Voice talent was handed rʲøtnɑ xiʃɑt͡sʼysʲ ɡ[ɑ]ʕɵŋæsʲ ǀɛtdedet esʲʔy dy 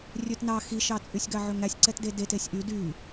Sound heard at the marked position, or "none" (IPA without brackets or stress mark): ɑ